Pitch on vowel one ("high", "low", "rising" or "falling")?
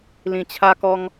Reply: low